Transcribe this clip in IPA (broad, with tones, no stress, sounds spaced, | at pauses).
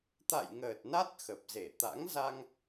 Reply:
t̪ a̰˧˨ j ŋ əː˨˩ t̚ n a˦˥ t̚ x ə˨˩ p̚ z e˧˩ t̪ a̰˧˥ ŋ z a˧ ŋ